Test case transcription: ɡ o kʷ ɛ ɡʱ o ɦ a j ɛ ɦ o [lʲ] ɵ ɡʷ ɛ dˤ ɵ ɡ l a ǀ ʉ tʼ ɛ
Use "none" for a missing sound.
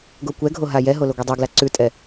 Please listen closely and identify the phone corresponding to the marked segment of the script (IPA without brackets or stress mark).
l